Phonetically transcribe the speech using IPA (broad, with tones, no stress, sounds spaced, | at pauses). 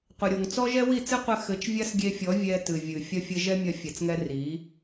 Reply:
qʷ ɘ˨ ɾʲ o˨ ŋ t͡s ɔ˦ ʒ ɛ˦ w i˦˨ t͡s ɨ˦ qʷ ɘ˧ x ɘ˨˦ t͡ʃ vʲ a˦ s ɡʲ e˧ fʲ ɔ˨˦ vʲ ɛ˧ t ɨ˨ vʲ ɨ˨ fʲ ɐ˦ fʲ ɘ˦ ʒ ɛ˦ mʲ ɐ˧ fʲ ɛ˨ t͡s ŋ ɛ˧ r i˨˦